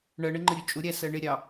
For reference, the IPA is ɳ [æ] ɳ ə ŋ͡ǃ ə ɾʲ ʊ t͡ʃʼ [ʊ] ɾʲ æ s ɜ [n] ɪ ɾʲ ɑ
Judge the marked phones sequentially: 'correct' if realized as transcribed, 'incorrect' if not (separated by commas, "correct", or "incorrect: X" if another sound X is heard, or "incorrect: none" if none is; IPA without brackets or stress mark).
incorrect: ɜ, correct, incorrect: ɳ